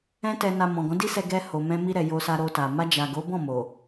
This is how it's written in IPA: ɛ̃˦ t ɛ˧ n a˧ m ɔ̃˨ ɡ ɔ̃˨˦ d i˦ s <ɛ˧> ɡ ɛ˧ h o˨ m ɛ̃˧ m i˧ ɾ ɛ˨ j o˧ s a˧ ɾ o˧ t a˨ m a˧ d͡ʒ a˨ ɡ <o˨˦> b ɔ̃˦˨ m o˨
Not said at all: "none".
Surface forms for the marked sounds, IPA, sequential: ɛ˧, o˨˦

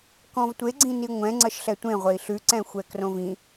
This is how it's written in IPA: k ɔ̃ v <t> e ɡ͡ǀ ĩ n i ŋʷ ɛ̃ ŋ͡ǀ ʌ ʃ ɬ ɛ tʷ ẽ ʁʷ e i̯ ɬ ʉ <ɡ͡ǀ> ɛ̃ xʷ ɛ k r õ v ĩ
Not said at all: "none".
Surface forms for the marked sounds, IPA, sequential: tʷ, ǀ

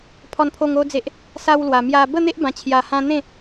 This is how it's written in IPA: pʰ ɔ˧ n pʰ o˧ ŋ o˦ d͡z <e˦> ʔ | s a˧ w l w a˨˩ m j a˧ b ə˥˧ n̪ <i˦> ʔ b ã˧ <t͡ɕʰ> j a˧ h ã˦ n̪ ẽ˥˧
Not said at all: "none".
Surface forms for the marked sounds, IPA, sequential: e˦, e˦, t͡ɕʰ

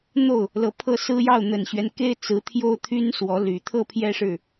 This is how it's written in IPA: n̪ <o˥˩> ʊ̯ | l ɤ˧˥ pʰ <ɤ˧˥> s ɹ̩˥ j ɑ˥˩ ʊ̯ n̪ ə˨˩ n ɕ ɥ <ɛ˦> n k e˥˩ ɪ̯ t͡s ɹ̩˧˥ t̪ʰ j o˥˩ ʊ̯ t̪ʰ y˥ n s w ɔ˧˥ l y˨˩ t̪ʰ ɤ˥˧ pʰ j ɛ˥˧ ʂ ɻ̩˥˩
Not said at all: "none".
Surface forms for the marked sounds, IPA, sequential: o˥˩, ɤ˥, ɛ˦

